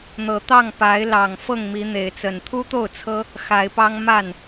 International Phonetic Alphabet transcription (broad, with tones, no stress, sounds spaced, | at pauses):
n̪ ɤ˨˩ t̪ ɑ˥˨ ŋ p a˨˦ ɪ̯ l ɑ˨˩ ŋ f ɤ˥˨ ŋ m i˨˦ n̪ e˨˦ ɪ̯ t͡s ə˨˩ n t̪ʰ u˦ t̪ o˥˨ ʊ̯ t͡sʰ ɤ˦ | x a˨˦ ɪ̯ p ɑ˦ ŋ m a˥˨ n